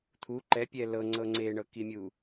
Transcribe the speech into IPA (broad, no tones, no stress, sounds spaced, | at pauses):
t̪ʰ u ǃ ɛ pʲ ɛ l ɤ ŋ͡ǀ ɤ ŋ͡ǀ e ɳ ɤ k i mʲ u